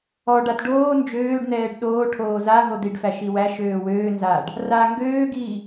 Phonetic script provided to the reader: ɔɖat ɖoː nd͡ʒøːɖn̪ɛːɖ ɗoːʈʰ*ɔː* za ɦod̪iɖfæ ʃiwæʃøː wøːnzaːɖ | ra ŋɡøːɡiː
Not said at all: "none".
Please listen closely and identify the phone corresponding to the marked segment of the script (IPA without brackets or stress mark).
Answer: oː